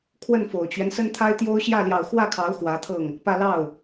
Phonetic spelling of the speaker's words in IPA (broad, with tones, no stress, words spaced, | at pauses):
kʰwə˥˩nfo˨˩ʊ̯t͡ɕɥɛ˦n sə˥nt̪ʰa˥ɪ̯t̪jo˥ʊ̯ ɕjä˥˩ ljɑ˨˩ʊ̯ xwä˥˩kʰɑ˧˥ʊ̯ xwä˧˥t̪ʰɤ˥˩ŋ | pä˥˧ lɑ˥˩ʊ̯